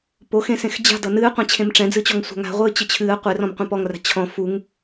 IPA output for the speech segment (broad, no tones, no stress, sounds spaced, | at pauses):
p o x ẽ s ẽ x d͡ʑ a̤ d ʌ n ɨː qʷ ɛ̃ t͡ɕʰ ẽ m ʈ͡ʂ ɛ̃ d͡z ɨ t͡ɕ ɔ ŋ sʷ a̤ ŋ a̤ ʁʷ ɨː t͡ɕ ɨ t͡ɕʰ ɨː ə̯ qʷ e r ɔ̃ m qʷ ɛ̃ p ɔ ŋ r a̤ t͡ɕʰ ɔ̃ f u ŋ